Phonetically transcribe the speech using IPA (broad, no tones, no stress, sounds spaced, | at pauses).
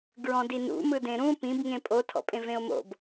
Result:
ɡ ɹ ɔ̃ d i n ṵ m ɯ d ẽ ɾ ũ p ĩ b ŋ ẽ pʼ o tʰ ɔ̰ pʼ ẽ v ẽ o̯ m o̰ b